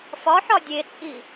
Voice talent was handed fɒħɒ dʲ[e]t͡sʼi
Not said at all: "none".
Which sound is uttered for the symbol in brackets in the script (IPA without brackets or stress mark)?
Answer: e